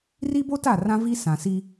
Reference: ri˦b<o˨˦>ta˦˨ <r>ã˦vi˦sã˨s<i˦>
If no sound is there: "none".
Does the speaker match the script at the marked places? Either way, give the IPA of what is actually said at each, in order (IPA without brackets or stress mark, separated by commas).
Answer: o˦, r, i˦